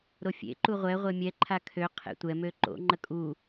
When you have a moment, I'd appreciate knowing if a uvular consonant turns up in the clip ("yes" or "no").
yes